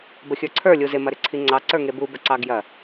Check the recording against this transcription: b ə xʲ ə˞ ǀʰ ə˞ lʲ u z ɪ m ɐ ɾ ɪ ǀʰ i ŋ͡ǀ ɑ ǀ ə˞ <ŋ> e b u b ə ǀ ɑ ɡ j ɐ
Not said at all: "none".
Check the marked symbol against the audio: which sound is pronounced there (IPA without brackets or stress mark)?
ŋ